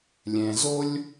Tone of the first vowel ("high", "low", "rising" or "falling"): low